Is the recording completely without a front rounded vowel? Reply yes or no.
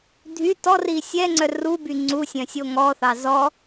no